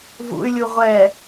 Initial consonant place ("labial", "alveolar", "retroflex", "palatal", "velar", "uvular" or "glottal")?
labial